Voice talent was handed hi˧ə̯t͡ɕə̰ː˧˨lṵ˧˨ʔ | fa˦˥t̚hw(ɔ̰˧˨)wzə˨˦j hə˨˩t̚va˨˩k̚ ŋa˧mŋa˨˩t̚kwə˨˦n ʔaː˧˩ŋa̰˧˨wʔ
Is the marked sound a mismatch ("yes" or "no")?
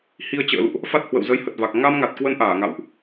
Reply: yes